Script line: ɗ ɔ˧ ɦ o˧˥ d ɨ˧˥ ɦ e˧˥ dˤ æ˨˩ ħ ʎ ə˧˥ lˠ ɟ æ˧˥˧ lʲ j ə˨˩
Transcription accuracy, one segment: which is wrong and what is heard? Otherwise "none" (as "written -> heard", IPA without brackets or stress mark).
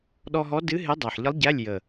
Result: o˧˥ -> ɔ˧˥